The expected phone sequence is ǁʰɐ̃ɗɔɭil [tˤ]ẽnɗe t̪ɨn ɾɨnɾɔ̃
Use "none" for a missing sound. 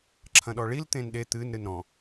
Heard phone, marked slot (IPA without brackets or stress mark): t̪